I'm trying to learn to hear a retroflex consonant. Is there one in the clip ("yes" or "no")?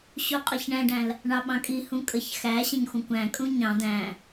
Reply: yes